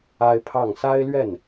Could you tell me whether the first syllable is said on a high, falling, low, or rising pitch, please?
high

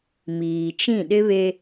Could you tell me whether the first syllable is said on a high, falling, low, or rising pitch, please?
low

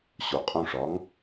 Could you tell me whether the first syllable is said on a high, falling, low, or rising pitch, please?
low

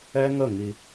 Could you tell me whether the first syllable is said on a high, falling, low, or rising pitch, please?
high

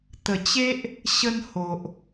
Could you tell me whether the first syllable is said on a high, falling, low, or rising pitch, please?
low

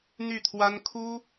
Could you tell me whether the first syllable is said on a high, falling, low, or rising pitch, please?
falling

